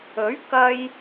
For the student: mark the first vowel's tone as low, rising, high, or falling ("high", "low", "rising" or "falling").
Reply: rising